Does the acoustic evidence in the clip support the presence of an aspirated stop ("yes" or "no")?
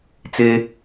no